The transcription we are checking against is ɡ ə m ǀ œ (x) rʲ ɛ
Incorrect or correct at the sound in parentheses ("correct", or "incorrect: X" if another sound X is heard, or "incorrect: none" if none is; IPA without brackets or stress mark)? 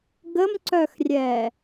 correct